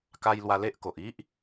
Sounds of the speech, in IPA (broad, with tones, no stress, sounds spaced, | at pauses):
k a˧ j l w a˧ l e˦ ʔ k o˨ ʔ i˦ ʔ